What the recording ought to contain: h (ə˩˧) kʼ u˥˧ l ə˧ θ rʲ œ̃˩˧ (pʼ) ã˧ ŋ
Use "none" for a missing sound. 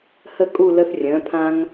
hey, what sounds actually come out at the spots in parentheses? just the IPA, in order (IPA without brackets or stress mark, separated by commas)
ə˥˧, pʰ